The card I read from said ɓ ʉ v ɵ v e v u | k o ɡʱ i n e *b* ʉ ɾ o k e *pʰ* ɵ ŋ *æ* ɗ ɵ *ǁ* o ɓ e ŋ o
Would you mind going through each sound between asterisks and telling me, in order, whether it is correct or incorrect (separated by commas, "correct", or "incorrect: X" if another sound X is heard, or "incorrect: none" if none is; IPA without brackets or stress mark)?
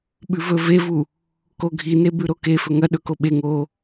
correct, incorrect: f, incorrect: ɐ, incorrect: k